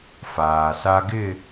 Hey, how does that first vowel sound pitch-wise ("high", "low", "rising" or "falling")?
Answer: low